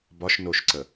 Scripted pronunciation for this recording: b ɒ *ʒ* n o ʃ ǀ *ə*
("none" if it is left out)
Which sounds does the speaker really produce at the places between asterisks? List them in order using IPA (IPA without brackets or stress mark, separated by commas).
ʃ, ə